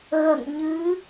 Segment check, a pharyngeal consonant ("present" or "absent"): absent